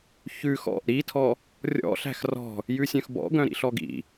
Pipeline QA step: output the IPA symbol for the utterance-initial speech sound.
ç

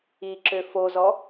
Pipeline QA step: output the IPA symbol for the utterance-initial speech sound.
i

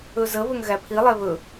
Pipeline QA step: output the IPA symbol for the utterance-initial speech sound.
ɵ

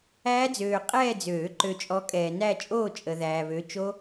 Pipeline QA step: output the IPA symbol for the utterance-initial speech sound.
æː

